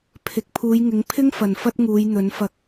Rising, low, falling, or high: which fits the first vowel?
low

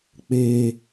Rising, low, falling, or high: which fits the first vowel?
low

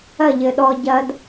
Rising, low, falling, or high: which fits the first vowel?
falling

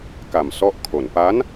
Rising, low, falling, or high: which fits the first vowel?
low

